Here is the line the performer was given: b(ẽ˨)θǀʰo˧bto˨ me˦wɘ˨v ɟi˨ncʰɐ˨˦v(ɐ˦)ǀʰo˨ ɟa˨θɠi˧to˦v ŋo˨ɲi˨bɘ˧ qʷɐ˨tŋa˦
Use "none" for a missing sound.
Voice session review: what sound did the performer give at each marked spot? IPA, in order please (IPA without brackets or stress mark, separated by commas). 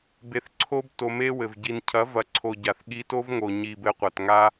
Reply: e˨, ɐ˨